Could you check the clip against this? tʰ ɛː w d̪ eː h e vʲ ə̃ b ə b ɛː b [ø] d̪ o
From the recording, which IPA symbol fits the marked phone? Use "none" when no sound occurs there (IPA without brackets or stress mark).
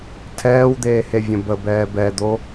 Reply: ɛ